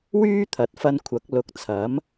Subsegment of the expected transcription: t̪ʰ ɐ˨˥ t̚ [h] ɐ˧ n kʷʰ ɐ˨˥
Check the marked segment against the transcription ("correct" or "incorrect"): incorrect